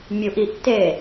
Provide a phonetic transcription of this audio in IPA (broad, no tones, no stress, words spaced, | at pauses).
mʲuʔ iʔtːeː